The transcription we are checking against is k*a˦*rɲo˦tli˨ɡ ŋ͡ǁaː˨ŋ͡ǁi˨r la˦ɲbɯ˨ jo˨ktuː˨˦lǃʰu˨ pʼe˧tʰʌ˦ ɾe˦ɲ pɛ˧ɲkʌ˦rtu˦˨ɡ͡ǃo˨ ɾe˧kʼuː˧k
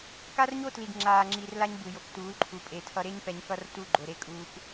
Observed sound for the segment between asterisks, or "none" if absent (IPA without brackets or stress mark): a˦